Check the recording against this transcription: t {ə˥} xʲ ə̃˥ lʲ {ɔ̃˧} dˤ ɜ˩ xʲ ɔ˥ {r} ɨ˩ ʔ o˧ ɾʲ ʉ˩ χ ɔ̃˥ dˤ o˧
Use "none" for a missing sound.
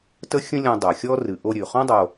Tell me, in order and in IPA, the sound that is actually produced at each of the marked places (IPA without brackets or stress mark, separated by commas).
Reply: ə˥, ɔ̃˧, r